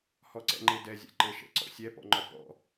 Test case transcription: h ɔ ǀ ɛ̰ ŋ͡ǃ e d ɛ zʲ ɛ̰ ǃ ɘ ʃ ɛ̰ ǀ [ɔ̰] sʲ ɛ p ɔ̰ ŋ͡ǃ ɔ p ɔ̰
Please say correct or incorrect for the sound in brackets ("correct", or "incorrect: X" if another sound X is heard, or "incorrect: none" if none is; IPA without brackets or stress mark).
correct